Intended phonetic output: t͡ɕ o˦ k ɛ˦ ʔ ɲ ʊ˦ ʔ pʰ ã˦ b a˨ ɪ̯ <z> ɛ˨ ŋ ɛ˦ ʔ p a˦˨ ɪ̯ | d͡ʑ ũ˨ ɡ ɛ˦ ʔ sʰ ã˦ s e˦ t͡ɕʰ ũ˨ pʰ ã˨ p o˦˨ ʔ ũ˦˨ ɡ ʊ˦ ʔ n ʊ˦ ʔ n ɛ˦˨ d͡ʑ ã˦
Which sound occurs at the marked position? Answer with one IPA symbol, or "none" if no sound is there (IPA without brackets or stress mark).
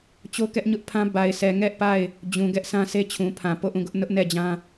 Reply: s